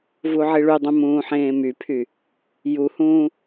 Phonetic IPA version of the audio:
vuʕiɭydˤũ mũːħẽːmypʰy | juhũː

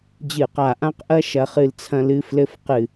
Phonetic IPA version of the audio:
d͡ʑɨ˧˩qa˧˩ʔã˦˥qʔɐ˦˥ ʃɐ˧χɨ˧l t͡sʰɐ̃˧lɨ˧ flɘ˦˥fqɨ˧˩

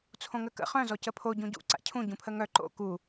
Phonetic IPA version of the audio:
t͡sʰõŋəkə̰ χœ̃ zɔcəpʰo ɟũɟṵ ǀa̰cʰũ ɟũpʰəŋœ ǃo̰ ku

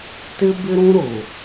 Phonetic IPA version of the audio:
tɪ˦bɪ˦ɾũ˦ ɾʊ˨

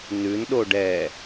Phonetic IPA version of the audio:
nʉn ɗoɖɛ

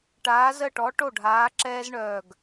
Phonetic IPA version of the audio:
ʈaː˨˥zə˥˩ʈɔ˨˥ ʈo˥˩ɖʱaː˨˥ ǁɛː˦zɳœː˧˩ɡ

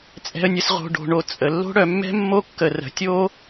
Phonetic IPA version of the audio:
t͡sʼɛ̤˨ə̯nʲə˨s ʁo̤˨ ɖo̤˩ɳo˨ t͡sʼə˩lːo̤˦ ɽœ˨mːɛ̤˥ mːo˦ kːə˨ rə̤˩tʲo˥

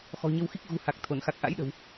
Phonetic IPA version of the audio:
xɔ̤˨˩ɲə˧wxi˦˥k̚ ɣṳ˨˩ha˨˩k̚ t̪ʰo˧˩nxa˨˩k̚ʔa̰˧˥jɗə̤˨˩w

